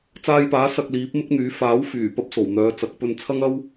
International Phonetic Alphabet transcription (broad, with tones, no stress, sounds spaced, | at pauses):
t͡s aː˧ j p aː˨˥ s ɐ˧ k̚ l iː˨˥ p̚ m ɪ˥ k̚ n̪ yː˨˥ f aː˨˥ w f yː˨˩ p ɐ˥ p̚ s o˨˩ w n̪ œː˨˧ t͡s ɐ˨˥ k̚ p ɵ˧ n t͡sʰ ɐ˥ ŋ ɐ˥ w